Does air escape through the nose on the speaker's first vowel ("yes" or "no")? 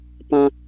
yes